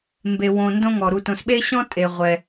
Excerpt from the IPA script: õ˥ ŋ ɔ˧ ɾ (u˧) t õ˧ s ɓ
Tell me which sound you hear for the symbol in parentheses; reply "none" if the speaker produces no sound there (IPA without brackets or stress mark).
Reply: u˧